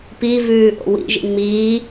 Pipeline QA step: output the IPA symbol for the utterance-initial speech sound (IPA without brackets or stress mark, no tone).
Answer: p